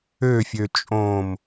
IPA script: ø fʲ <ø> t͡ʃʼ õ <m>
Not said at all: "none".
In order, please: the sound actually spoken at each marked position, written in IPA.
ø, m

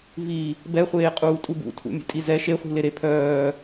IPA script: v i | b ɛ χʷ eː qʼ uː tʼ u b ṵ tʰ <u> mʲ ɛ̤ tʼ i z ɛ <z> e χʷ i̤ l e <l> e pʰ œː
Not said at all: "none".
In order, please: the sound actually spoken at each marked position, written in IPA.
ṵ, ʃ, ɾ

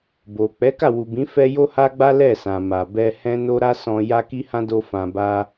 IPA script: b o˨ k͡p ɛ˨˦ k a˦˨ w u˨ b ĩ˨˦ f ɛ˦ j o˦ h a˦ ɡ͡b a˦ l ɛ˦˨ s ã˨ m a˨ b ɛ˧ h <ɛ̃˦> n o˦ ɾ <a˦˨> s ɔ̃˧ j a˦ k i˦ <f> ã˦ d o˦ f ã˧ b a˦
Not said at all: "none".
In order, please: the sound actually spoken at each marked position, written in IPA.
ɛ̃˦, a˦, h

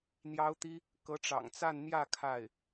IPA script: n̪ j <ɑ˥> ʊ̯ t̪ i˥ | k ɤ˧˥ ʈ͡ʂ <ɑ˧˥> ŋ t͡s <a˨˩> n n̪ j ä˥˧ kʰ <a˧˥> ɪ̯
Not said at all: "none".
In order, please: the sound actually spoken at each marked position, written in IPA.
ɑ˥, ɑ̰˨˩, a˥˧, a˥˩

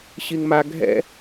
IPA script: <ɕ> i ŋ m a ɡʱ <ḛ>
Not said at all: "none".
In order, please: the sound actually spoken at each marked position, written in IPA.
ɕ, ɛ̰

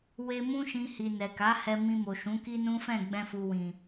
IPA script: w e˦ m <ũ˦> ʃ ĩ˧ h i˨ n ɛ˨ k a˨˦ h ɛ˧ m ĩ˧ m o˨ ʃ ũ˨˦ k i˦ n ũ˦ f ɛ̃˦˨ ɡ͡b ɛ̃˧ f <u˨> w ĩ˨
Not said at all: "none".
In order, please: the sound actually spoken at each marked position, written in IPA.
ũ˦, u˨

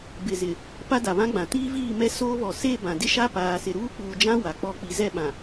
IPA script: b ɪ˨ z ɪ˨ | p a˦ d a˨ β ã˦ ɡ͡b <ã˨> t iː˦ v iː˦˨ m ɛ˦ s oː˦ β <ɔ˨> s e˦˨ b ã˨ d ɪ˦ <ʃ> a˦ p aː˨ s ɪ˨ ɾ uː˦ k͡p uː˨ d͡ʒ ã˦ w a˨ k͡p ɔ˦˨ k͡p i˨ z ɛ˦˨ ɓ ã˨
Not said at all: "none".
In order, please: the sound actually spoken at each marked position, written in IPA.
ã˨, ɔ˨, ʃ

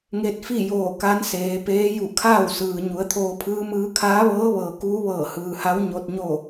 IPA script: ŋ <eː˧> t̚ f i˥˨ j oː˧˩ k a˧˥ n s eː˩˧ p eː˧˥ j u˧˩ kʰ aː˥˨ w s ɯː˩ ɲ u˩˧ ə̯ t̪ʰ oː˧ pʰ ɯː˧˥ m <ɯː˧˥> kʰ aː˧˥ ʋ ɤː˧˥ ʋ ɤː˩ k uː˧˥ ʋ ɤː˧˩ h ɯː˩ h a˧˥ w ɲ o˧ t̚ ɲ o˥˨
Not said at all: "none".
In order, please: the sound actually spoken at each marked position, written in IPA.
e˧, ɯː˧˥

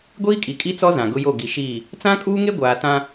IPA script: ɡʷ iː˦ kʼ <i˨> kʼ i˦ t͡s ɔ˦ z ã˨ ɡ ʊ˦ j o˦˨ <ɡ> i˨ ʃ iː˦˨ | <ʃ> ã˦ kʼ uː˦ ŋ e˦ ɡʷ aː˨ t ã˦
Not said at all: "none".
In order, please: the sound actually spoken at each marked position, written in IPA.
i˨, ɡ, t͡s

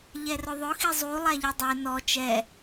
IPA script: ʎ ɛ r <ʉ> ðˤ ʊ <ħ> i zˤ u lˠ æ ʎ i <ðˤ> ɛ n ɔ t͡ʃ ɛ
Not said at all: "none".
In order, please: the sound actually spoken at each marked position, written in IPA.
ʊ, x, dˤ

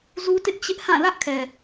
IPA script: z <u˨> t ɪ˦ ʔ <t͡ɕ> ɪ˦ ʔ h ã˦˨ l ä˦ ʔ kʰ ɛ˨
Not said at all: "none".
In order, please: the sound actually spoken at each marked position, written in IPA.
u˦, t͡ɕ

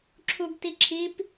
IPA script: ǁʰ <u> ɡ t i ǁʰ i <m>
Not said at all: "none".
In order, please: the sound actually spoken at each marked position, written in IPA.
u, p

